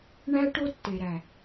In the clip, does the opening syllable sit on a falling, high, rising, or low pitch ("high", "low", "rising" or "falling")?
high